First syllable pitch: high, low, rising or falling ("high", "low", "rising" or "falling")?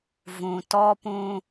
low